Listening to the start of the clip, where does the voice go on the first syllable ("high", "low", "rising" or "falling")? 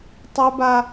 high